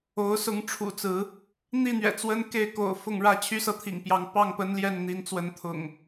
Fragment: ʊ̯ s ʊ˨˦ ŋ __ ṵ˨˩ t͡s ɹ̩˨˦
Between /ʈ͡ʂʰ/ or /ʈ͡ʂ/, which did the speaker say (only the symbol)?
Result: ʈ͡ʂʰ